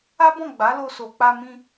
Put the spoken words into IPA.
a˦ b ɔ̃˦˨ ɡ͡b a˨˦ l o˧ s o˨ k͡p a˧ m ĩ˧

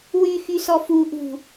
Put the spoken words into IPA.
w y x y s ɔ f u ʔ ṳ

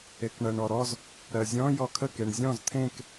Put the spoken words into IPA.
e k ɳ ɜ ɳ ɔ ɾ ɔ z | ɾ ɜ zʲ ɔ̃ j ɔ kʰ ə k e ɳ zʲ ɔ̃ z t̪ʰ ẽ k

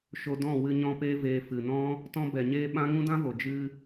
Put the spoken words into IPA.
ʃ o˧ d ɔ̃˦˨ w ɨ˧ ɲ ɔ̃˦ p eː˦ v eː˧ f ɨ˨ n ɔ̃˦ | t ɔ̃˧ b ɛ˨ ɲ eː˧ ɓ ã˦ ŋ ũ˦ d ã˦ v o˨ d͡ʒ ɨ˧

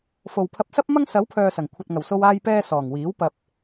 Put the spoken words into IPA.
f o˨ w pʰ ɐ˧ p̚ s ɐ˥ p̚ m ɐ˥ ŋ s ɐ˨˥ w pʰ œː˨ s ɐ˨˩ ŋ kʷʰ ɐ˨ t̚ ŋ ɐ˨˩ w s o˧ w aː˧ j p ɛː˧ s ɔː˨˩ ŋ w iː˨˥ w p ɐ˧ p̚

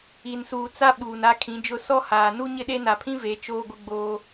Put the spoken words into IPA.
i˨ n s uː˨ t͡s a˦ ɓ uː˨ n a˦ kʰ ĩ˨˦ d͡ʒ ʊ˦ s ɔ˦ h aː˨ n u˦ ɲ ɪ˦ ɗ e˦ n a˨ pʰ ĩ˦ v e˨˦ t͡ʃ oː˦ ɡʷ ɪ˦ ɡ͡b oː˦

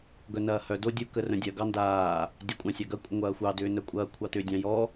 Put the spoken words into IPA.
ɡ œ n ɐː h œ d o dʲ u k ə r œ̃ dʲ ɐ ɡ ɑ n d aː | dʲ ɐ kʷʼ ɑ̃ sʲ ɑ ɡ ɐ kʷʼ ə ŋʷ ɐː xʷ ɑ d ʏː n œ kʷʼ ɐː kʷʰ ɑ t̪ ʏ dʲ ɑ̃ j ɔ

